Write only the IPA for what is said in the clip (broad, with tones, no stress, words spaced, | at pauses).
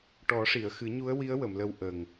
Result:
ʈɔ˨˩˦ʂi˨˩˨ə̯ xɨ˨˩˦ɲu˧˥ə̯wi˧˥ə̯ wə˨˩˨mlə˧w ʔə˨˩ŋ